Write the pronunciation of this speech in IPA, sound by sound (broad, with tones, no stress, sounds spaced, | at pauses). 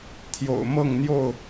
t̪ʰ j o̰˨˩ ʊ̯ m ɤ˥˨ ŋ n̪ j o˥˨ ʊ̯